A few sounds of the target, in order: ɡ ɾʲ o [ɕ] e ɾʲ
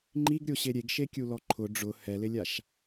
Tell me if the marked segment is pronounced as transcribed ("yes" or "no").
yes